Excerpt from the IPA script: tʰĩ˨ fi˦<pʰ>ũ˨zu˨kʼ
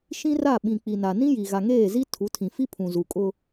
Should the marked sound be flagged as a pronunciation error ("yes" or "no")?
no